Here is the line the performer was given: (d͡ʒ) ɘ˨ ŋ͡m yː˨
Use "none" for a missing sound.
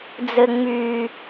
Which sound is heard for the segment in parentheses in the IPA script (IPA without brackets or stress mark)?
d͡z